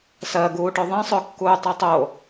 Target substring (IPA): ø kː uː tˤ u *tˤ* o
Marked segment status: correct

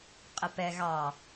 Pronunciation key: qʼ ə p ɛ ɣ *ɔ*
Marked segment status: incorrect: ɑ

